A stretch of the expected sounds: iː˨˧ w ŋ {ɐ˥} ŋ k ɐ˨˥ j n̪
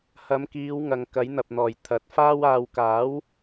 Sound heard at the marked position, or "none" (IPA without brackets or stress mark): ɐ˨